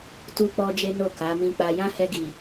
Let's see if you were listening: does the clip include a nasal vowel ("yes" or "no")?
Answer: yes